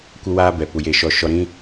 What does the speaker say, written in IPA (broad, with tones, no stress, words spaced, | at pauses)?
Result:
kʷə˦waː˦ bɛ˨ pu˨je˧ʃɔ˧ ʃɔ˧ɾĩ˦